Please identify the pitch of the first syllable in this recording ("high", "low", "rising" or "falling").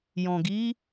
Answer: low